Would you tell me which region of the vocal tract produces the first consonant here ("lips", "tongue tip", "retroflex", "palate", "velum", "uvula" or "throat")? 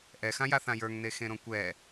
throat